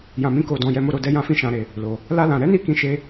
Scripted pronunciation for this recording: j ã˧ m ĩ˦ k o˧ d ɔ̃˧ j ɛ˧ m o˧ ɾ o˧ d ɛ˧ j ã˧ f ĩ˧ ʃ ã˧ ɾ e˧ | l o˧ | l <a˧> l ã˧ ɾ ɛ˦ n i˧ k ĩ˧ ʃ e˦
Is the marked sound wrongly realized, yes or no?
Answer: yes